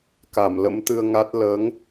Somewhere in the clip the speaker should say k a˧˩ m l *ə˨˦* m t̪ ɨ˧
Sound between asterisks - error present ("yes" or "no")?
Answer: yes